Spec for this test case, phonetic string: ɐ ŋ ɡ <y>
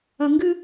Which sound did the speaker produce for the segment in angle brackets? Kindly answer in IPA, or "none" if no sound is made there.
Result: ɨ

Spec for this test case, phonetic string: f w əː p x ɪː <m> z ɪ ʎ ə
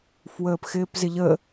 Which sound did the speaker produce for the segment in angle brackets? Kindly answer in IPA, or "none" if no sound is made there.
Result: p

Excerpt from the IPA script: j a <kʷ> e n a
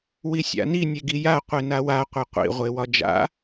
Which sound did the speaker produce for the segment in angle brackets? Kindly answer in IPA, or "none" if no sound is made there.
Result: qʷ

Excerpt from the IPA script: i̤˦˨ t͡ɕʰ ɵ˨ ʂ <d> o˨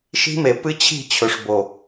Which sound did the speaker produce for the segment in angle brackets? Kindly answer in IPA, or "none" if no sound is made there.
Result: b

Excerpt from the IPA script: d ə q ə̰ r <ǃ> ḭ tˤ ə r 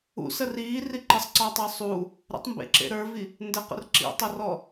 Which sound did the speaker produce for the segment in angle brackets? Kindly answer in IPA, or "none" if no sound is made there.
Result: ǁ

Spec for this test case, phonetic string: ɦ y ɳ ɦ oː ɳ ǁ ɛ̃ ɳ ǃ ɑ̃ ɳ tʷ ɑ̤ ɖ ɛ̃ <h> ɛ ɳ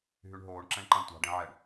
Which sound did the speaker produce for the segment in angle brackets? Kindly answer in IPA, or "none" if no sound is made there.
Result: ʕ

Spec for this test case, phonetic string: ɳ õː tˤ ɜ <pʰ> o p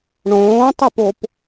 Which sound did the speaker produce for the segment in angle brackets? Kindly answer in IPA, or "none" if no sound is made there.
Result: p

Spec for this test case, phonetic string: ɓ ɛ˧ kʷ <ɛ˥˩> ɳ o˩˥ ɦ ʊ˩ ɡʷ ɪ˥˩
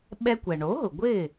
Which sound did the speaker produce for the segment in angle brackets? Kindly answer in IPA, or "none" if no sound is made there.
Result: ɛ˩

